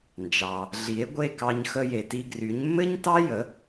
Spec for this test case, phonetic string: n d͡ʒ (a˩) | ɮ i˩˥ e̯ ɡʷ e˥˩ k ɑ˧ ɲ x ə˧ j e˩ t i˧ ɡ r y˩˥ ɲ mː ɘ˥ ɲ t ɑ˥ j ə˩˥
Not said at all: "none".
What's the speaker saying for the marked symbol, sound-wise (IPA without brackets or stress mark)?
ɑ˩